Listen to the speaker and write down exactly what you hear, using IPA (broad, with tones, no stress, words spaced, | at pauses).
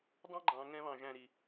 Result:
dˤɑ̃˦ɡ͡ǃɑ̃˨ ŋɛ̃˦βɑ̃˧ʒæ̃˧ ɾi˨